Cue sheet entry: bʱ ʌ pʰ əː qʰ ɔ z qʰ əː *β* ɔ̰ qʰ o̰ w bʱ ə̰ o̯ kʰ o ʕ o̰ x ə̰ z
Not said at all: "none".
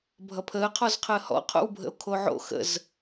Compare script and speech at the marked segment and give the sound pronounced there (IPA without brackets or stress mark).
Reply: h